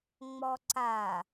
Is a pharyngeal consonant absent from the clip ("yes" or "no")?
yes